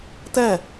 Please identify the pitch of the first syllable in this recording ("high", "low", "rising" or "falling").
falling